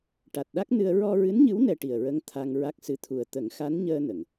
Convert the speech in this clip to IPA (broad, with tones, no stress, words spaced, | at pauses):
ʈa˨˩t̚ɗa˦˥k̚nɨ˧ə̯ ɹɔ˧ɹɨ˧˥nɲɨ˧˥w nɛ˧ʈi˨˩ə̯ɹə˧˥ŋ t̪ʰa˧ŋ ɹa˦˥k̚sɨ˧˥t̪ʰu˨˩ə̯ t̪ə˨˩˦ŋxa˧˥nɲəː˧ nə˨˩˨ŋ